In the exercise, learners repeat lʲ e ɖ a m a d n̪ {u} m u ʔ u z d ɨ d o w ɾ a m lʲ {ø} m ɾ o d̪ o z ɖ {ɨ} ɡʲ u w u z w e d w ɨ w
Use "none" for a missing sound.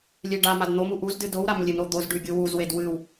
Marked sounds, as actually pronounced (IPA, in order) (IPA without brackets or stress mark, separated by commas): o, e, ʉ